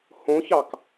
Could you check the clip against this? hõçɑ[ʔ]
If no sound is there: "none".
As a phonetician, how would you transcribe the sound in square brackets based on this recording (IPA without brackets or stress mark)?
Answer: k